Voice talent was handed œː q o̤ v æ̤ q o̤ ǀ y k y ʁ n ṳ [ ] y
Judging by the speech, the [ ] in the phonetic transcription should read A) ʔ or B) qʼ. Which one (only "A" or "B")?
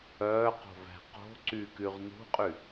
B